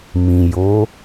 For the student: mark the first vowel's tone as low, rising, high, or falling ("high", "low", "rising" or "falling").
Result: low